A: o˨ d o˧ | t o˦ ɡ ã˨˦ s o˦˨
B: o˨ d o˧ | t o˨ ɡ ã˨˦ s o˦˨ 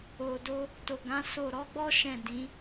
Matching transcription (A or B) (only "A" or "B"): B